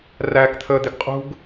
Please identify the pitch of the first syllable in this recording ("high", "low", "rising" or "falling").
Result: low